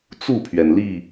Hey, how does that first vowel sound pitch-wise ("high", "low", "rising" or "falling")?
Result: falling